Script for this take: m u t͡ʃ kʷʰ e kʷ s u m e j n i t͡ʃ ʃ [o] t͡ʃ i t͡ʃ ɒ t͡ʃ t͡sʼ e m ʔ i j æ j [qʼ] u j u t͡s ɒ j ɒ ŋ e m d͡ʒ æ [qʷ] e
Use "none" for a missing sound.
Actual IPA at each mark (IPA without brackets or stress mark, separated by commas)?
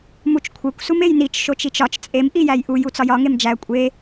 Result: o, ʔ, kʷʼ